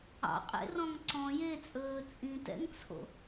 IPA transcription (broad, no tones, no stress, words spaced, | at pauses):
ɑ̰ qʼḛrɔ̃ŋǀɔ̃ jet͡sʼɵː t͡sʼĩtɛ̰ŋt͡sʰo̰